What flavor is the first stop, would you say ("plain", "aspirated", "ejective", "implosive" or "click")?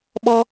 implosive